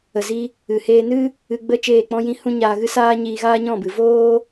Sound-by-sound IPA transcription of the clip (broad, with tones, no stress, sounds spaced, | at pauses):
ə˨ z i˧ | ɨ˨ h eː˧ n ɨ˦ | ɨ˧ ɡ͡b ə˦˨ t͡ʃ eː˦˨ k͡p ɔ̃˦ j ĩ˦ h ũ˦ ɲ aː˧ ɣ ɨ˦ s aː˦ ɲ iː˧ ɣ aː˦ ɲ ɔ̃˦˨ b ɨ˨ v oː˦